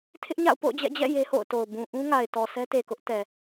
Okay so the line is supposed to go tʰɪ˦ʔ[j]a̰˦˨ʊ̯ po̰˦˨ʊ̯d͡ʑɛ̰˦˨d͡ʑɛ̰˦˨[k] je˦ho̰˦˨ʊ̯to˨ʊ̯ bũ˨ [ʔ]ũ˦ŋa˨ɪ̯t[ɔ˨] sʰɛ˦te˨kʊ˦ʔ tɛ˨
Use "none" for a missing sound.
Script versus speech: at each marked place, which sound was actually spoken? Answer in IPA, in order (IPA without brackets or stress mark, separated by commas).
ɲ, none, ʔ, ɔ˨